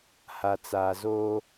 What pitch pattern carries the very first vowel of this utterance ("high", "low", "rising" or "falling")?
low